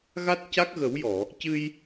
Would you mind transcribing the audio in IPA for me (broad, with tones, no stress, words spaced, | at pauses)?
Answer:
ɣa˦˥t̚ca˦˥k̚ɣə˨˩˦wjɔ˨˩˨ | cɨ˧j